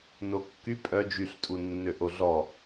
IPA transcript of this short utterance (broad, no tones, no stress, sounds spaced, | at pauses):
n o kː y pʼ œ d͡ʒ y ɬ tʼ u nː ø ʔ o ɮ ɔ